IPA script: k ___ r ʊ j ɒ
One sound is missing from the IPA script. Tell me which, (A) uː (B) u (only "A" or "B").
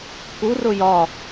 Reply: B